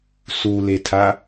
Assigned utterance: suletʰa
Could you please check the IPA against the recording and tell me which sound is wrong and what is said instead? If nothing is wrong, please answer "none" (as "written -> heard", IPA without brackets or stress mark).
none